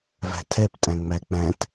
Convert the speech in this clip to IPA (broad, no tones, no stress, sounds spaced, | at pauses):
v æ̤ tʰ ɛ p tʼ æ̃ ŋ͡m æ k͡p æ̃ t